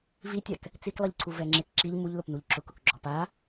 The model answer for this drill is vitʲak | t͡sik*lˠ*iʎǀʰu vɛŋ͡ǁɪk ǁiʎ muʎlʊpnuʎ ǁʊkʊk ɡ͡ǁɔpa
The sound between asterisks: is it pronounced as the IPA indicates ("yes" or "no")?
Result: yes